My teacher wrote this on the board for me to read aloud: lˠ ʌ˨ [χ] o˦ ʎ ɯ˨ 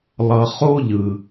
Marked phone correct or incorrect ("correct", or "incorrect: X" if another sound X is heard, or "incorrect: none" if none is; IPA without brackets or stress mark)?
correct